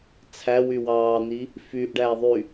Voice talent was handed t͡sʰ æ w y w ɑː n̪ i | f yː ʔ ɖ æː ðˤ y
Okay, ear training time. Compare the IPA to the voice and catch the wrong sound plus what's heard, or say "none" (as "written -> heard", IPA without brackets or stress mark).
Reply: none